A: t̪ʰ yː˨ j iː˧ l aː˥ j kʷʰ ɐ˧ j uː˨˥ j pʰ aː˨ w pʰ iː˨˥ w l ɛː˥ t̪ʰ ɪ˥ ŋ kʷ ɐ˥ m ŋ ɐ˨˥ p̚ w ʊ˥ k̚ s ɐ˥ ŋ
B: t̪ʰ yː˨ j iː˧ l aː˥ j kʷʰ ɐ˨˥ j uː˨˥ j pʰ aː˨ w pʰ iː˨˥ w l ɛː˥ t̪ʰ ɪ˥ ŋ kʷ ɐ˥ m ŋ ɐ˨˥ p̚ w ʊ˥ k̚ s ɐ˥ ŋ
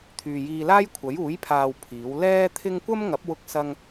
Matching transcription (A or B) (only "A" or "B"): B